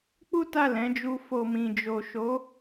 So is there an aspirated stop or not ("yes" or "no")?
no